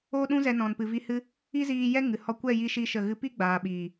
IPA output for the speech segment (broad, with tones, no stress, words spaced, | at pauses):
oː˦ɗũ˦zɛ˧nɔ̃˨n pɨ˨vi˧ hɨ˦ | i˦ziː˧ jɛ˦ ŋɨ˨ hɔ˧ kʷɛ˦˨ji˧ʃi˧ ʃə˦˨ɣɨ˦ pi˦ɡ͡baː˨ɓiː˨